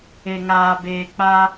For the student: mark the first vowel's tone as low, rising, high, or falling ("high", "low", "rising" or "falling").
low